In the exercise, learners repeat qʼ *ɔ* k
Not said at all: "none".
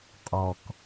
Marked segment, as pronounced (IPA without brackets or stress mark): ɔ